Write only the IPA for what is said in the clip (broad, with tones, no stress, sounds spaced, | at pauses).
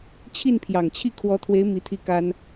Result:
t͡ɕʰ i˥˩ n pʰ j ɑ˨˩ ŋ t͡ɕʰ i˥˩ kʰ w ɔ˧˥ t̪ʰ w e˧˥ ɪ̯ m i˧˥ t̪ʰ i˥˩ k a˥ n